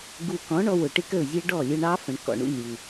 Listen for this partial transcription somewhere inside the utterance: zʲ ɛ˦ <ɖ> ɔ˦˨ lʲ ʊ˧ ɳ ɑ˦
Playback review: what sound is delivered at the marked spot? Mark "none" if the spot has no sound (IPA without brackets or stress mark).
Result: ɖ